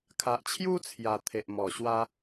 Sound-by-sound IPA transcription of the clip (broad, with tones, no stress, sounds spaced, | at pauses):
kʰ a˨ ʔ t͡ɕʰ j u˦ t͡sʰ j a˨˩ t̪ʰ e˨ ʔ m ɔ˨˩ ɕ w a˧